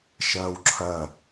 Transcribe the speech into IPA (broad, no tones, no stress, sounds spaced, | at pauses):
ʃ ɐː w ǁʰ ɐ